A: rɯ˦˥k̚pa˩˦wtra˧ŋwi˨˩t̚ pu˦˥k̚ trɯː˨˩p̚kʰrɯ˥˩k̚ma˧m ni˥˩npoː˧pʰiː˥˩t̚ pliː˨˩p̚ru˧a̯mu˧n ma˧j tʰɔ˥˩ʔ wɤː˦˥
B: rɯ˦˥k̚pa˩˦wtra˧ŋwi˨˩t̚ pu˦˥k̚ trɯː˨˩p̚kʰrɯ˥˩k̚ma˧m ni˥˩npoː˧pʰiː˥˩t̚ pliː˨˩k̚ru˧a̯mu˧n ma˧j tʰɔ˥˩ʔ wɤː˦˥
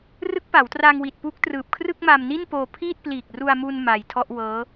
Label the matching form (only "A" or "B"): B